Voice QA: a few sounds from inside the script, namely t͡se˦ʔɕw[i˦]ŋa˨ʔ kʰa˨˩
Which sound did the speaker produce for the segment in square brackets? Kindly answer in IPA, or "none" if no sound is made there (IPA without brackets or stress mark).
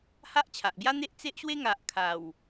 e˦